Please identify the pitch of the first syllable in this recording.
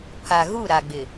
low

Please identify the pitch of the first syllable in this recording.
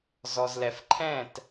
low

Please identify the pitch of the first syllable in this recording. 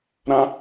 high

